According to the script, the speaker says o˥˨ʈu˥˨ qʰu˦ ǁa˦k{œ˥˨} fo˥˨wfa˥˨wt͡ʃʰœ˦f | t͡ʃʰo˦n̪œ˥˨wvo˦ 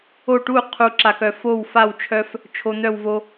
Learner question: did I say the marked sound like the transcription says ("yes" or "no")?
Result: no